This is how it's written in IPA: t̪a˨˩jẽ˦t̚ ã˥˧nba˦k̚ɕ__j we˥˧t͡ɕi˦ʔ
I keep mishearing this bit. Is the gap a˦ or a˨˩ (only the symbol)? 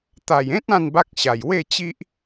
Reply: a˨˩